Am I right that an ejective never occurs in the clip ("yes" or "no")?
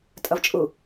no